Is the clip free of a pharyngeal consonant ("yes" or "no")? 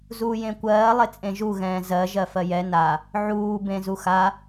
no